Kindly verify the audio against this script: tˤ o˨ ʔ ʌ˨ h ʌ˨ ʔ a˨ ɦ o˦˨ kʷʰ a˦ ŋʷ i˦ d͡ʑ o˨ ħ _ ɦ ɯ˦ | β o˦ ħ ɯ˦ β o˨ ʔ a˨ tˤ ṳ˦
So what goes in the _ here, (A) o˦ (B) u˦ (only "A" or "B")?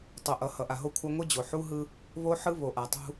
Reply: B